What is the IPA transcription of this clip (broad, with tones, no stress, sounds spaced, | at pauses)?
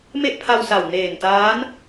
m e˥˩ ʔ pʰ a˧ w s a˨˩ w n eː˨˩ n t aː˦˥ n